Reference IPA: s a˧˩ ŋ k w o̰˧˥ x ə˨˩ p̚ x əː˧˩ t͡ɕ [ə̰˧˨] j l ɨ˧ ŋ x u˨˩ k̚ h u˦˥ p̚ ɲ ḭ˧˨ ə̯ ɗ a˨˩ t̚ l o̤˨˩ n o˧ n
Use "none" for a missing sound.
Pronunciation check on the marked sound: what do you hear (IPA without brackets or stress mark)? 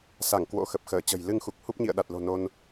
ə̤˨˩